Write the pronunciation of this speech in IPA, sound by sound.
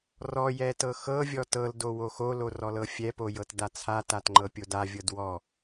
r ɔ j ɛ t ɤ x ɤ vʲ ɔ t ɤ l d o w o x o l o r ɔ l ɤ fʲ ɛ p o j ɤ t d a t͡sʰ a t a t ŋ͡ǃ ɤ pʲ o d a vʲ ɤ d w ɔ

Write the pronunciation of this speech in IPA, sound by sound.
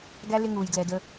ɡ æ˦ l ɪ˦ ŋ uː˨ j d l ɛ˨ d ə˦

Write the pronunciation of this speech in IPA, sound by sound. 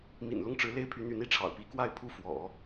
m ḭ˨˩ n l ʊ˥˩ ŋ ʈ͡ʂ ɻ̩˧˥ l e˥˩ ɪ̯ pʰ y˧˥ n̪ y˧˥ n i˧˥ ʈ͡ʂʰ ɑ̰˨˩ ʊ̯ p i˧˥ k w a˥˧ ɪ̯ pʰ u˥˩ f w ɔ̰˨˩˦

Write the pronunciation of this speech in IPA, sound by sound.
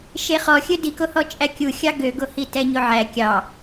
ʃ e χ ɔ xʲ ɵ d i k o h ɔ t͡ʃʼ æ kʲ u xʲ ɑ ɡ ø ɡ o h i t ɛ ɲ o ʕ æ kʲ ɑ

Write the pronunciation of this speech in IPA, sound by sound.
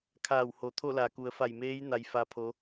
kʰ aː˧˩ w h o˩ t̪ʰ o˥˨ l a˩ k u˩˧ ə̯ f a˧˩ j m eː˧˥ j n a˧ j f a˧˥ pʰ o˧˥

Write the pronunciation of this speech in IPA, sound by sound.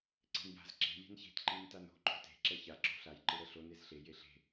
ǀ e̤ n j a̤ z ǁ e̤ lʲ e̤ n ç e̤ t ǃ i n t a n o̤ ǃ o̤ t e̤ ǁ ɛ ç a ǁ o̤ ɬ a j ǃ ɯ ɾ ɛ ɬ o n e z ɬ e j e ɬ e̤

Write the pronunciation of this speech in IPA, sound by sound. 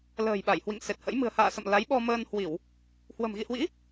l ə̤ː˨˩ j ɓ a˧˩ j h w ḭ˧˨ ŋ s e˨˩ t̚ h ə̰˧˥ j m ɨ̤˨˩ ə̯ h a̰ː˧˨ s ə̰˧˨ m l a˨˦ j ɓ ɔ˧ m əː˧ n h w i˧˩˨ w | h w ə̤˨˩ m ɣ ḭ˧˨ h w ḭ˧˥

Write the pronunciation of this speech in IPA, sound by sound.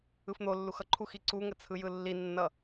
ɯ f n̪ o lː u x ʌ ǃʰ u x i ǀ u ŋ ə t͡sʰ ɯ j ɯ lː i nː ʌ

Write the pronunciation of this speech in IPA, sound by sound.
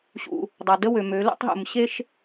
ɕ ṵ˧ | dˤ a˧ d ə˥ w ø˧ m ø˧˥ l ṵ˧˥ tˤ ɦ ṵ˧ m ɕ e˥ ʃ

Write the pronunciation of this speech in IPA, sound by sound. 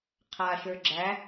qʰ a ʃ ə˞ ɡ͡ǁ æ

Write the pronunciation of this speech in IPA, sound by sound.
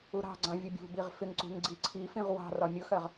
u ɾ ɑ̤ ɡ͡ǀ ɑ̃ vʲ ʊ bʲ ṳ b i ʁ f ɪ ŋ ǀ ṳ ŋ ɡ͡ǀ i ǀʰ i f ĩ ʁ w ɑ̤ r ɒ mʲ ʊ x ɜ ʁ

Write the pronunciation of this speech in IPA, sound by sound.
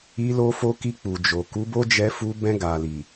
i˧ l o˧ f o˧ k i˧ k͡p u˨ d͡ʒ o˨ k u˨˦ b o˦ d͡ʒ ɛ˧ f u˧ b ɛ̃˧ ɡ a˨ l i˨

